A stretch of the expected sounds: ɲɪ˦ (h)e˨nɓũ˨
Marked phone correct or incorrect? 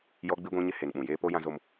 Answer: correct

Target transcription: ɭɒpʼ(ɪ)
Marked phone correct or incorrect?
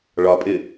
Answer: correct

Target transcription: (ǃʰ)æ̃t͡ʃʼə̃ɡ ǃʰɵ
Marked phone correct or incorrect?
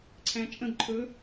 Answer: incorrect: ǀʰ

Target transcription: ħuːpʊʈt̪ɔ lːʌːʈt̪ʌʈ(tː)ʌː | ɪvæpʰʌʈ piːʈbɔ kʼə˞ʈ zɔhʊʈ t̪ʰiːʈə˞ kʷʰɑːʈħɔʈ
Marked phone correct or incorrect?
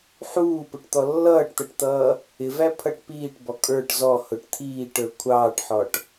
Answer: incorrect: t̪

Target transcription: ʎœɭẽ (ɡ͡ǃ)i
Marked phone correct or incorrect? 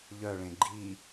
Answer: correct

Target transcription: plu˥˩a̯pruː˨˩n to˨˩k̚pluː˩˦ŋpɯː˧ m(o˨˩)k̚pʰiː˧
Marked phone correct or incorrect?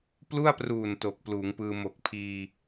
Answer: correct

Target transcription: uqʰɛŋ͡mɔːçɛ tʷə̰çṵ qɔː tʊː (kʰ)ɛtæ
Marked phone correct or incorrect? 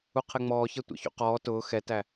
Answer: incorrect: x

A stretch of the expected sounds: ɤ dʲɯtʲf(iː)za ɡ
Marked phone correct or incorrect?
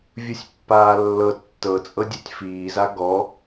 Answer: correct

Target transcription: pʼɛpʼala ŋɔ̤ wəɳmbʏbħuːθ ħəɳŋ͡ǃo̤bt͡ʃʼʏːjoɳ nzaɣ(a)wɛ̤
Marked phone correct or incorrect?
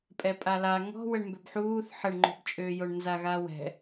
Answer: correct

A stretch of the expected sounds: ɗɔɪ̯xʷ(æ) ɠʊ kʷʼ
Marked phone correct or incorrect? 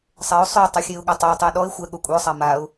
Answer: incorrect: ɛ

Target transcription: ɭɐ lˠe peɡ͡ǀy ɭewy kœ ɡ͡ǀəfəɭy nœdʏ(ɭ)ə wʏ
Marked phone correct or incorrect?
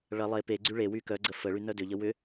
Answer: incorrect: ʎ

